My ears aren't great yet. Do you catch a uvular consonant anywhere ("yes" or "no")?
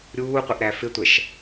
yes